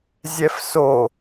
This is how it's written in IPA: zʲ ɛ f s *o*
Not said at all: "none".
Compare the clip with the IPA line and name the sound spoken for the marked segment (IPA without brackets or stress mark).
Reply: o